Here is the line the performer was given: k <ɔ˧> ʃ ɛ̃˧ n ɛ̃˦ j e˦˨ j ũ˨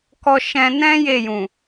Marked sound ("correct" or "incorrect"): correct